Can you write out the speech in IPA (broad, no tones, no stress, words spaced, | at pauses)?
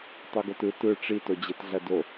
tˤoɡotɯ tɯ ʈ͡ʂi tod͡ʑetɮɐdo